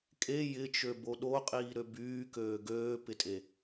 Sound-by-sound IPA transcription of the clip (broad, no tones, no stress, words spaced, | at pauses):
kʼe jɪt͡ʃø boɗoqʼiː ɾøbyːkøː ɡøːpɪtʼe